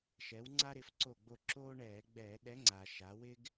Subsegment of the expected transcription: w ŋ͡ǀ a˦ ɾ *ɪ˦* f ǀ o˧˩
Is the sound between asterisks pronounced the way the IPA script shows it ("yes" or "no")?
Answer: no